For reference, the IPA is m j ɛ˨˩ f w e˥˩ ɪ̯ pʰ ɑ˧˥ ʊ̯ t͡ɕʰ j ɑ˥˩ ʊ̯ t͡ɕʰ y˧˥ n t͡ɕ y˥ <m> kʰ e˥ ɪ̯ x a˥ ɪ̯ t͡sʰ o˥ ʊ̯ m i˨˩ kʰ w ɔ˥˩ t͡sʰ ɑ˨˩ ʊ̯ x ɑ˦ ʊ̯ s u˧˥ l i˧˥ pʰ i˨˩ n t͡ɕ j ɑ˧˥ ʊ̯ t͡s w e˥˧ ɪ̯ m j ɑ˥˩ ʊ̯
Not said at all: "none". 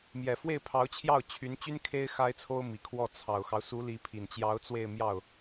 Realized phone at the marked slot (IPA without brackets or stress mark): n